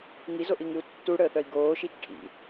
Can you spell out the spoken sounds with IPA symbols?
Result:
ŋizoʔiŋɨu̯ tːuɽəːθœi̯ ɡoːʃit͡ʃ ʈʰḭ

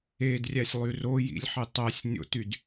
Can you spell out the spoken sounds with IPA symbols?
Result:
edrʲæsʲlˠy rojḭlʲħe tˤæsʲnʲo̰tyd

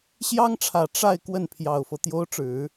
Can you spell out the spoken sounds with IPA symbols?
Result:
ɕjɑ˥ŋʈ͡ʂʰä˨˩ ʈ͡ʂa˥˧ɪ̯ kwə˥˩npʰjɑ˨˩ʊ̯fɤ˦ t̪jo˧˥ʊ̯ʈ͡ʂɻ̩˨˩˦

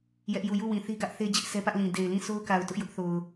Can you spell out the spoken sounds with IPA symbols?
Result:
jɛ˦ʔju˦˨ ju˦˨wĩ˨ θi˦ɡä˦ʔθe˦ d͡ʑɪ˦ʔsɛ˦pä˦ʔlĩ˨ de˨ɪ̯lĩ˦˨ so˦ʊ̯ka˨ʊ̯ tʊ˦ʔjʊ˦ʔθo˨ʊ̯

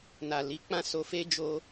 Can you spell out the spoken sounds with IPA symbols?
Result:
na˨li˨˦k͡pã˦˨ so˧fe˦d͡ʒo˧

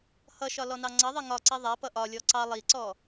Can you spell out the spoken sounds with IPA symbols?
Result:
hʌʃɒlɔnɑ ŋ͡ǀʌðˤi ŋɒǀi ðˤæpʌ ʔɒlʲɔ ǀɑ lˠiǀɔ

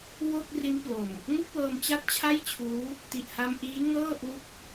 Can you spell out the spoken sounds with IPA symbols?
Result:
wo˥˩k̚ri˦˥nplo˨˩m | ŋu˥˩k̚wɤː˧m t͡ɕa˥˩t̚t͡ɕʰa˥˩jt͡ɕʰuː˦˥ | ti˨˩ʔha˧mʔiː˦˥ ŋɤː˥˩ʔu˦˥k̚

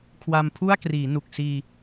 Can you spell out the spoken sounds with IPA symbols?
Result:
kʰwa˧mpʰu˥˩a̯ kriː˩˦nu˨˩k̚siː˧

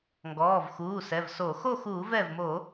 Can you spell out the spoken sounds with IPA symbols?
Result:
ŋɡɔː˩˧˩vxuː˩˧˩sɛ˩˧˩vso˧˩˧ xo˥˨xuː˧˩˧vɛ˧˩vmo˧˩˧

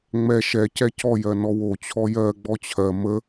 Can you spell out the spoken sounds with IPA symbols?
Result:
ŋ͡mɛ ʃɛ cɛcɔjɜ nɔwot͡ɕʰɔ jɜ ɡ͡bɔt͡ɕʰɜ mə

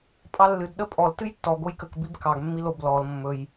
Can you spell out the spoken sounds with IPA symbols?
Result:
pʼɑlːɨd ɗəpʼɔl tɨjtːɔɡ ojkək bibkɑɡ mːilob lɔl mːɵj

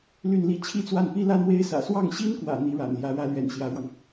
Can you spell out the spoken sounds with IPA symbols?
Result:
ly˥˧nli˥˩ t͡ɕʰi˥t͡swa˥˩npi˥ la˥nwe˥ɪ̯sä̰˨˩ swɑ˥˩ŋɕi˥nkwä̰˨˩ n̪i˧˥ɻa̰˨˩nljä˧˥ ɻä˧˥lɥɛ̰˨˩n ɕjä˧˥ɻwɑ˧ŋ

